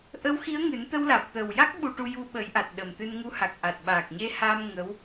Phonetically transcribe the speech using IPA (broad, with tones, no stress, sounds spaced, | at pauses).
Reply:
ʔ ə˧˥ w x i˧˥ ə̯ ŋ ɨ˨˩˦ n t̪ ə˧ w l aː˨˩ p̚ t̪ əː˨˩ w j a˦˥ k̚ ɓ u˧ ʈ u˧ j u˧ ɓ əː˨˩˦ j ʔ a˨˩ t̚ ɗ ə˨˩ m t̪ ɨ˧ n ŋ u˧˥ h a˨˩ k̚ ʔ a˨˩ t̚ ɓ aː˨˩ k̚ ɲ e˧ h aː˧ m ŋ ə˧˥ w